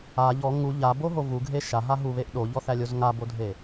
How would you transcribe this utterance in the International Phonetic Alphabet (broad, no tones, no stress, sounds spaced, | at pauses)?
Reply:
a ʎ ɔ ŋ u ʎ a b o ɦ o v u ɡʱ e ʃ a ɦ a ɦ u β e ʔ ɗ o ʎ ɔ θ æ lʲ o z ŋ a b o dʱ e